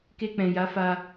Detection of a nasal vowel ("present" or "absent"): present